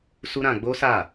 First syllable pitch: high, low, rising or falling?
high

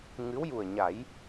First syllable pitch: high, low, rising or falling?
rising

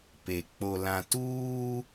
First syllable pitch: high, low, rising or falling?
low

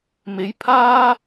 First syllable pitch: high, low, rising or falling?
rising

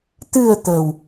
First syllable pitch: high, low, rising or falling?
low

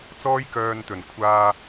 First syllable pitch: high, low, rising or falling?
high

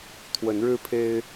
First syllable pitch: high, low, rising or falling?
rising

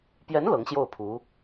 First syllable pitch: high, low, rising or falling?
rising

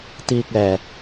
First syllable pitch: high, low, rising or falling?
low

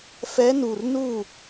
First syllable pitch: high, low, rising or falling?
rising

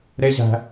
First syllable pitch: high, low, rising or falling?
high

